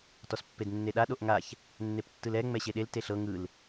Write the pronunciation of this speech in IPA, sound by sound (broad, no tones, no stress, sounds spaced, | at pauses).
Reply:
t ɔ s pː e d nː e ɗ a ɗ o ʔ ŋ a ç | nː e p tː ɯ l ɛ ŋ͡m ɛ ɕ e ɗ e l t e ɬ ɤ ŋ ɯ l